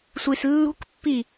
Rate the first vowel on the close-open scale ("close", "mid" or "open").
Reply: close